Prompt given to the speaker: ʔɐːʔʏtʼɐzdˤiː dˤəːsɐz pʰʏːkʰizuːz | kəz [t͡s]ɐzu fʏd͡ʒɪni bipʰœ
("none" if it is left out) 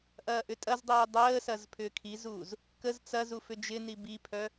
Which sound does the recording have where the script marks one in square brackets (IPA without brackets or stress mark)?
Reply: t͡s